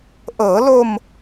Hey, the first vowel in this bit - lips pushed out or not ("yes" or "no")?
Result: no